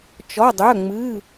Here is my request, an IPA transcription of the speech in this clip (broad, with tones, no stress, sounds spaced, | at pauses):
t͡ʃ ɔ˧˥˧ dˤ œ˧˥˧ ŋ͡m ɨ˧˥˧